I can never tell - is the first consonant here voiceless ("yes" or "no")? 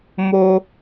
no